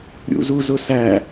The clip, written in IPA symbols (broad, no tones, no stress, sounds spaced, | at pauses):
ɾʲ ṵ z u z ʊ s æ